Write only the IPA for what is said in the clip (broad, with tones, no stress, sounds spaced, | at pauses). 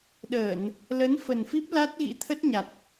ɗ əː˧˩˨ n | l ə˨˦ n f ə˨˩ n f i˦˥ p̚ l a˦˥ t̚ ɣ ḭ˧˥ t̪ʰ ə˦˥ t̚ ɲ a˨˩ t̚